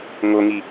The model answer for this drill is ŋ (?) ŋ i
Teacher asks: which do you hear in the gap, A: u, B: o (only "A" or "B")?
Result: B